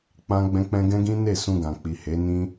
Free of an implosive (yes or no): yes